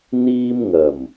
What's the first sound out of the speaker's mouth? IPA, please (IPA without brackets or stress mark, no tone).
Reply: n̪